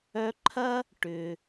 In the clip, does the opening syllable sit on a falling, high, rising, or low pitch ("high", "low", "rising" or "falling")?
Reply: high